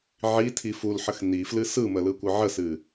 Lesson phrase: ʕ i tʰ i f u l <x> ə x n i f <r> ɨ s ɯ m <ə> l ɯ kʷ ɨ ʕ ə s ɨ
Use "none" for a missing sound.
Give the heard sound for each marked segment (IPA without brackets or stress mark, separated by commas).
ħ, l, ə